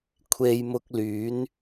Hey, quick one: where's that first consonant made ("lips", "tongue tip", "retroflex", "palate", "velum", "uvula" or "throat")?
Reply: velum